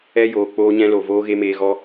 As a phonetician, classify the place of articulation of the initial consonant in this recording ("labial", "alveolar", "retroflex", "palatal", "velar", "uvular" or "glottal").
palatal